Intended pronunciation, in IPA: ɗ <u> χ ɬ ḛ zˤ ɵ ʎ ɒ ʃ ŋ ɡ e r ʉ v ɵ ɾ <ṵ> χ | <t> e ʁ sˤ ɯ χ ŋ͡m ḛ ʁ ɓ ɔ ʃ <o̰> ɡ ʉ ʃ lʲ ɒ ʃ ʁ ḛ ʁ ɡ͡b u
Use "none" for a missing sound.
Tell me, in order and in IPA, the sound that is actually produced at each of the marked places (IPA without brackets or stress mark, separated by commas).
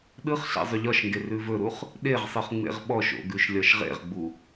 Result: ɯ, u, ɗ, o̰